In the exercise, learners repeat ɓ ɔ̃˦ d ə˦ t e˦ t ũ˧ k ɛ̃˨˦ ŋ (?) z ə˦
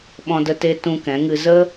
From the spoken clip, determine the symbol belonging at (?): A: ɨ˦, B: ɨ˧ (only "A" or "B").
B